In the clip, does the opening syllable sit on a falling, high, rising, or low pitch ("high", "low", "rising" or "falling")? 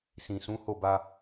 low